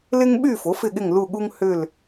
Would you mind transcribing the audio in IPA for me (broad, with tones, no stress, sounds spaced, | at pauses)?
l ɪ˦ ŋ ɓ y˦˨ f o˩˥ f ɪ˦˨ ɠ ɪ˦˨ ŋ l u˦˨ ɠ u˦ ŋ h ʏ˦˨ l